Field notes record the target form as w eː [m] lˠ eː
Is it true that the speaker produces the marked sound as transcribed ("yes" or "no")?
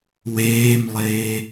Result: yes